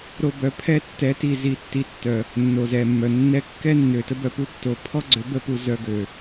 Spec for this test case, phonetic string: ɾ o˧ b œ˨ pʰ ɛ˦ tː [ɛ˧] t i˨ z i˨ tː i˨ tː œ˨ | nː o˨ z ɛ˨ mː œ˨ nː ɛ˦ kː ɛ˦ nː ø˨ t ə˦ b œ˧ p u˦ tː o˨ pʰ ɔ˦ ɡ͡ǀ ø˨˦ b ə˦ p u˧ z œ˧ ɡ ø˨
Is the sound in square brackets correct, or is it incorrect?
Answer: incorrect